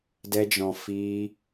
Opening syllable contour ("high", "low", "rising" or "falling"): high